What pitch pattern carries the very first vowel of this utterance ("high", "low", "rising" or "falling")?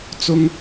high